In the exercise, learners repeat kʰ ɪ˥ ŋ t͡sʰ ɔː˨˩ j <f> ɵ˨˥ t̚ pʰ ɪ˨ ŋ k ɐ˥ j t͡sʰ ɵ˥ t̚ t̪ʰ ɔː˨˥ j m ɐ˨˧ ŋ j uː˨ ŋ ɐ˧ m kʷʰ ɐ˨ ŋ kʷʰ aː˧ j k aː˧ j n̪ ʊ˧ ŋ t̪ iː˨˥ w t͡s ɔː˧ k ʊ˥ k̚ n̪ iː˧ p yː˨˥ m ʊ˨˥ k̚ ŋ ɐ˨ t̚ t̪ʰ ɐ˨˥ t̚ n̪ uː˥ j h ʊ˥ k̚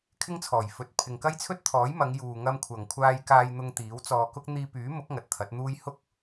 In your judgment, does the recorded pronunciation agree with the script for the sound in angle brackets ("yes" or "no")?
yes